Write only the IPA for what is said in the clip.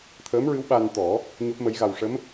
t̪ʰəː˧˥mɹɨ˧˥w ɓa˧nt̪ɔ˨˩˦ | ɲo˦˥p̚mə˧˥jɣa˧w ʂə˧˥m

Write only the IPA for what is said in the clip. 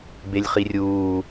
belʲχirʲuː

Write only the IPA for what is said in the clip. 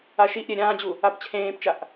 aʃiʔɾʲeː ɾʲãːd͡ʑu | apt͡ɕʰẽːpt͡ʃaʔ

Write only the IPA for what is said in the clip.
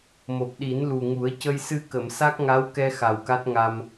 mo˨˩p̚ɗi˨˩˦nlu˨˩ŋu˨˩˦ə̯ cə˧jsɨ˧ kə˨˩˨msa˦˥k̚ŋa˧˥wkɛ˧ xa˨˩wka˦˥t̚ŋa˧m

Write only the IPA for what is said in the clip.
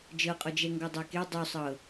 d͡ʒɤqʼɔd͡ʒɛ ŋɡɔdˤɛke dˤusˤɤ

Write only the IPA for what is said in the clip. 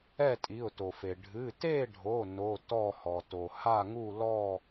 ɛ˥˨tʼi˩˧˩ʊ̯to˩fe˩ ɖʱɨ˩˧˩te˥˨ɖʱo˩˧˩ no˩˧˩ tɔ˥˨hɔ˩to˩ ha˥˨ŋu˥˨lɔ˥˨

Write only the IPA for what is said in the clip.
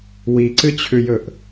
wiǀɨt͡ɕʰʉjɵʔ

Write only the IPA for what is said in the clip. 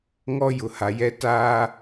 ŋɔ˦ jʊ˨ha˨jɛ˦ taː˦

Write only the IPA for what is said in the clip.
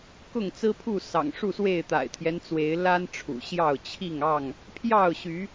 kʊ˥˨ŋ t͡sɹ̩˦pʰu˥˨ sɑ̰˨˩ŋʂu˥˨swe˥˨ɪ̯ t̪a̰˨˩ɪ̯t̪ʰjɛ˦nt͡swe˨˦ɪ̯ la˦n ʈ͡ʂʰṵ˨˩ɕjɑ˥˨ʊ̯ t͡ɕʰi˥˨ŋɑ˥˨ŋ | pʰjɑ˥˨ʊ̯ɕy˨˦

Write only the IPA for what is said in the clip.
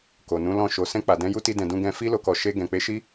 ko˨nũ˨˦lɔ̃˦˨ ʃo˨sɛ̃˧ k͡pa˨ dɛ̃˧ju˦ti˧dɛ̃˨ dũ˧ɡɛ̃˧ fi˦lo˧kɔ˨ ʃe˧ ɡɛ̃˨k͡pe˨˦ʃi˦

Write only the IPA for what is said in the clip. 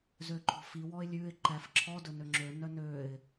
zøǃʰɔ̤fi wɔɪ̯lʲʉɪ̯ ǃæfǁʰɔ dɵnøŋ͡ǁø nœnøɪ̯

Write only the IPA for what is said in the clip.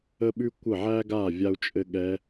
ə˥ɓʉ˥ kʷə˥˩ʕæ˥ɡa˥˩ vʲa˥u̯t͡ʃʼɘ˥ɠɛ˧˥

